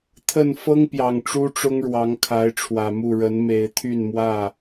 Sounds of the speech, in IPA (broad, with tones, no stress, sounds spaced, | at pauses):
t̪ʰ ə˥˨ n f ɤ˦ ŋ p j ɑ˨˩ ŋ ʈ͡ʂ u˦ ʈ͡ʂ ʊ˦ ŋ ɻ w ɑ˨˦ ŋ kʰ a˨˦ ɪ̯ ʈ͡ʂʰ w ä˨˩ m u˥˨ ɻ ə˨˦ n m e˨˦ ɪ̯ t̪ʰ y˥˨ n m w ä˥˨